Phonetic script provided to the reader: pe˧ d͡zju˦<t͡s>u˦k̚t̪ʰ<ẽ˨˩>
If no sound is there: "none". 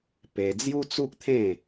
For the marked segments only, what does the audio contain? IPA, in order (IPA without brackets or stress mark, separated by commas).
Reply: t͡s, ẽ˥˧